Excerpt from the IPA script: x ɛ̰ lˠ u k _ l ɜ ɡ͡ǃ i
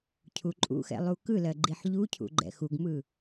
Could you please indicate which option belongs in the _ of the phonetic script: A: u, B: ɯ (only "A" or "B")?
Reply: B